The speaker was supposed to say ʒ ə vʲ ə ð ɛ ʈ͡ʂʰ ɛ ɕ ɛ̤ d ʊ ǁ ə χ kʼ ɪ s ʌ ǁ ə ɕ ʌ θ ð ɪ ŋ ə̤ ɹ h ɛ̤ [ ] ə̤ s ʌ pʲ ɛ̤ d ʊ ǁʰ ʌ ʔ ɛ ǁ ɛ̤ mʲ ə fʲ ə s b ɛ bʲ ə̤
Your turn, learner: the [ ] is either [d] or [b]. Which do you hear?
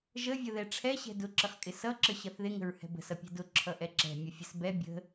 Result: b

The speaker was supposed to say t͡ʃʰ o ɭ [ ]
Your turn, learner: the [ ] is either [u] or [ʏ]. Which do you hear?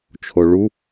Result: u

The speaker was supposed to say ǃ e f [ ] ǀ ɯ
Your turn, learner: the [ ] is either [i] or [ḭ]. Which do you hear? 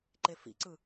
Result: ḭ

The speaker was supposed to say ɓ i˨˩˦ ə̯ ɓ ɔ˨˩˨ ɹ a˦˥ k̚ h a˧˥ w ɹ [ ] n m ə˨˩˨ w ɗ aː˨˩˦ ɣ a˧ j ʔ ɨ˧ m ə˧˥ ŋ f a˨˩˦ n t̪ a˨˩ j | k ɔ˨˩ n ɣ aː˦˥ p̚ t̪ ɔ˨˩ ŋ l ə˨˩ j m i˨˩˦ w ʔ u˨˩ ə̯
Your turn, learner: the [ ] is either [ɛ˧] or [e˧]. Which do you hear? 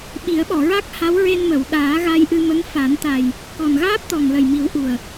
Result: e˧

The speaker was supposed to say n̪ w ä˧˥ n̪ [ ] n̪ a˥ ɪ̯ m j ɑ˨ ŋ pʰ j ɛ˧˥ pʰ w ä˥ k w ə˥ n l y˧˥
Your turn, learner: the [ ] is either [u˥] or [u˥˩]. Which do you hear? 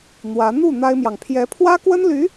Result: u˥˩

